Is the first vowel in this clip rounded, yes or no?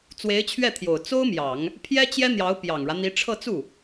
no